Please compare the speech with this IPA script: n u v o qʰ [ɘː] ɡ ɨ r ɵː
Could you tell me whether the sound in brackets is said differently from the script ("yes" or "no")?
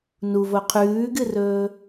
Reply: yes